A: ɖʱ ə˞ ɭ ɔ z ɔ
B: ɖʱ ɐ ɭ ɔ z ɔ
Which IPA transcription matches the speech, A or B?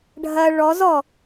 B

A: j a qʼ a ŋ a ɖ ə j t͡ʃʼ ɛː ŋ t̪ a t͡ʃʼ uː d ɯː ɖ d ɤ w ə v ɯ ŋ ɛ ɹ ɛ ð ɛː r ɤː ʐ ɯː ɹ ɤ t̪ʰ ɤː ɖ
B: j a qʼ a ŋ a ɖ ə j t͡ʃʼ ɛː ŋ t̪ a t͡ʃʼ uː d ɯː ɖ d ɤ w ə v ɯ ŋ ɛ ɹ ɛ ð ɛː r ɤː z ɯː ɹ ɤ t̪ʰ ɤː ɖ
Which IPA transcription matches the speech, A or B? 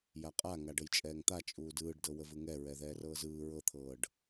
B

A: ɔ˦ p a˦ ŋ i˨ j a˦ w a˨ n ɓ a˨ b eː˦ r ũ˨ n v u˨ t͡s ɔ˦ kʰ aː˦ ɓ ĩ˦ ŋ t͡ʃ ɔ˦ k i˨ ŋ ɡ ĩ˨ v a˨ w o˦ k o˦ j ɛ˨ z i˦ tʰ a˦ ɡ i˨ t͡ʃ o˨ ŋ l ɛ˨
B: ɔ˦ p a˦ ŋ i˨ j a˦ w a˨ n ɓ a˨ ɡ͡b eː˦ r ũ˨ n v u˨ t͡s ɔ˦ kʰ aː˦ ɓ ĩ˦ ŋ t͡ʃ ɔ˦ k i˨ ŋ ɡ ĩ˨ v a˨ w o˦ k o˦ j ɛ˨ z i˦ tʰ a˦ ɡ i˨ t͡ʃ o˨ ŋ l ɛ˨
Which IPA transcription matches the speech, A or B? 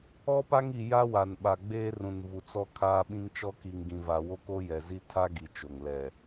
B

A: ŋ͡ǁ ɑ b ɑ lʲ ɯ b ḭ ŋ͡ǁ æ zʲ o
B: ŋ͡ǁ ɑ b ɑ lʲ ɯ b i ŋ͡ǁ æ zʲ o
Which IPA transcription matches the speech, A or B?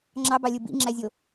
A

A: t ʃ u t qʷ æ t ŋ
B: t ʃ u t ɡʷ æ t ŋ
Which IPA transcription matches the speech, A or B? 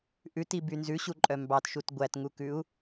B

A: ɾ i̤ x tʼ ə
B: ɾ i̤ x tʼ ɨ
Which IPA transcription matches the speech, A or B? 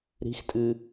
B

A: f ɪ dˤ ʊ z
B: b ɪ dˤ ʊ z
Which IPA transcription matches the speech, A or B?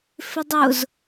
A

